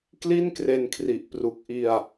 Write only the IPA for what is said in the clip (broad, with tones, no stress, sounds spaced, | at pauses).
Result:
k l i˥˩ n k r e˧ n kʰ r i˨˩ ʔ p r u˨˩ k̚ ʔ i˧ a̯